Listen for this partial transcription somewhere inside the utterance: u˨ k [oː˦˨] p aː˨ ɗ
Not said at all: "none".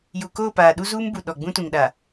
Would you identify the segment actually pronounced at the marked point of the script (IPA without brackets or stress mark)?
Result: oː˦˨